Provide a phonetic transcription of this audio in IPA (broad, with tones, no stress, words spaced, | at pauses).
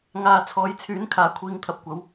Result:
ŋaː˨ t͡sʰɔː˨˥jt͡sʰyː˨˥n kʰaː˨˥kʷʰiː˧ŋt̪ʰɐ˧p̚kʷɐ˨˥w